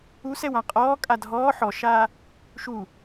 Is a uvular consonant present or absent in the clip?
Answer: present